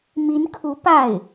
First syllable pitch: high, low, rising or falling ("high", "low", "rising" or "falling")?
rising